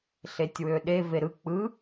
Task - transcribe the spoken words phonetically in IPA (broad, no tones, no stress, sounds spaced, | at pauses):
ɬ e tʲ w ø ɗ e v e ɾ ɯ k͡p ɯ